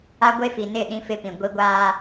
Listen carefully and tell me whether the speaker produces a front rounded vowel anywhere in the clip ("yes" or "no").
no